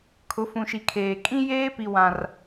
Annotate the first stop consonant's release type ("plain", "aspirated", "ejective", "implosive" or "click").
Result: aspirated